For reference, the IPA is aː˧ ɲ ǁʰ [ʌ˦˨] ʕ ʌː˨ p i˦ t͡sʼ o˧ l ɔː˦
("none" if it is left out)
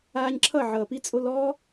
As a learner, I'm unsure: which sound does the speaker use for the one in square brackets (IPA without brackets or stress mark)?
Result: ʌ˦˨